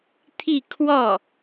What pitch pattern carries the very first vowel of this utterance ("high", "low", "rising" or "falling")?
falling